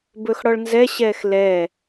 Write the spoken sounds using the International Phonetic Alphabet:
b ɵ x ɽ ɔ ɭ n z ɛ ɕ ɛː x l ɛː

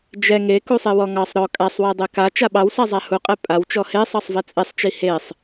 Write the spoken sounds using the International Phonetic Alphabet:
d͡ʒ ɛ ŋ e k u sˤ e w ɔ ŋ ɑ sˤ ɾ ɔ kʼ a sˤ w e dˤ ɛ k a t͡ʃ a ɓ ɑ w s a zˤ a h u qʼ e pʼ a w t͡ʃ ɔ h e sˤ ɑ sˤ v ɛ t͡sʼ e sˤ t͡ʃ i h e sˤ

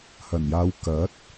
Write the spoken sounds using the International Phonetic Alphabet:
h ɐ˨˩ n j aː˨˧ w k ɐ˨˥ t̚

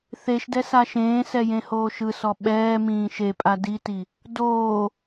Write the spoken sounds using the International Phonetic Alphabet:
θ e ʃ d ɛ s a ʃ ẽː s ɛ j ẽ h oː ʃ ɯ s ɔ ɓ ɛː m ĩː ʃ e pʼ a d i t i | d oː

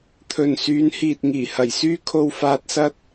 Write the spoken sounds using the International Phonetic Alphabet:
t̪ʰ ɵ˨ n s yː˨˧ n h iː˨ t̚ ŋ iː˨˩ h ɐ˨˩ j s yː˥ kʰ o˧ w f aː˧ t̚ s ɐ˥ t̚

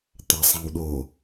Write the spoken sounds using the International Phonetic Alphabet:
t̪ a sˤ ɛ̃ w ɗ o

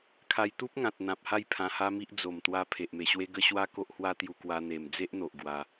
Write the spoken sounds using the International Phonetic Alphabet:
kʰ a˧ j t̪ u˦ p̚ ŋ ã˨ t̚ n̪ ã˨ p̚ h a˥˧ j pʰ ã˧ h a˦ m i˦ ʔ d͡z o˨˩ m t̪ w a˧ pʰ e˨ ʔ m e˨˩ ɕ w e˦ ɡ ə˥˧ ɕ w a˦ k o˦ ʔ h w a˦ t̪ j u˧ k w a˧ n̪ e˨˩ m d͡z e˦ ʔ n̪ o˨ ʔ ɡ w a˧

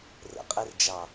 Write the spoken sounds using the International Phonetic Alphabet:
r ə̰ qʼ e r d͡ʒ ɑ

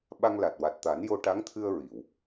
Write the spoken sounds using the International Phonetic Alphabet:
ɓ a˧ ŋ l a˨˩ t̚ w a˨˩ t̚ t̪ a˨˩˦ n j o˧ ʈ a˧˥ ŋ t̪ʰ ɨ˧ ə̯ ɹ i˨˩˨ w

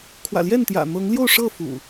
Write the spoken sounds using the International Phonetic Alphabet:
kʰ w ä̰˨˩ l j ɛ˥˨ n t̪ j ä̰˨˩ n̪ ɤ˨˦ ŋ l j o˥˨ ʊ̯ ʂ ɤ˥˨ f ṵ˨˩

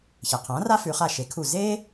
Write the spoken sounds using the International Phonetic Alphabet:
ç e˩ qʰ ãː˩˥ r a˥ f ʉ˩˧ χ a˧˩ ʃ e˩˥ kʰ u˧˩ z eː˥

